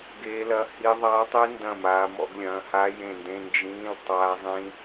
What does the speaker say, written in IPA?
ɡ e˦˥ l ɐ˦˥ h i˦˥ ðˤ aː˦˥ tˤ i˦˥ n d ɐ̃˦˨ m aː˦˥ m ɔ̰˦˥ ɡ lʲ ɐ̃ː˧˥˧ h a˦˥ j ẽ˦˨ n d ẽ˧˥˧ n d͡ʒ ĩː˧˥˧ l tˤ aː˦˥ zˤ ĩ˦˥

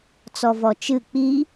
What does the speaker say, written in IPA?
t͡s ɔ v ɔ t͡ʃ ɨ k͡p i

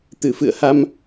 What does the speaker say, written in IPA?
t̪ ɨ˧˩ f ɨ̰˧˨ ə̯ h a˧ m

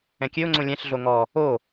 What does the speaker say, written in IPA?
ɛ̃ kʲ ø ʊ̯ ŋ͡ǀ õ lʲ ɛ̃ ɬ ɮ o ŋ ɔ | o

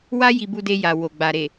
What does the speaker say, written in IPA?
w a˦ j i˧ b u˧ d e˧ j a˨ w o˨ ɡ͡b a˨ ɾ e˨

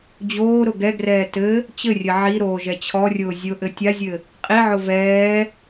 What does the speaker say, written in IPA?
d͡ʑ oː ɾ ʊ ɡ ɛ ɡ r ɛː t ɘ | t͡ɕ ɘ rʲ ɘ ʕ i ɾ oː ʒ ɛ t͡ɕʰ ɔ rʲ ʊː zʲ ʊ ʔ ɘ tʲ a zʲ ɘ | qʼ i ʕ ʊ v ɛː

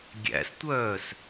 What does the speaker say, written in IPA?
ɡʲ æ̰ s tʷ œː s

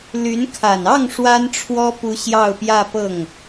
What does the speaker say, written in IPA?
l y˧˥ n kʰ a˨˩ n ɑ˥˩ ŋ ʂ w a˥ n ʈ͡ʂʰ w ɔ˥ p u˧˥ ɕ j ɑ˥˧ ʊ̯ p j ä˥˧ p ɤ˥˩ ŋ

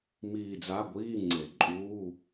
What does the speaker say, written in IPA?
m iː˦˨ d͡z a˧˥˧ ɡʷ iː˧˥˧ ŋ͡ǀ e˨˩˦ ǃʼ uː˧˥˧

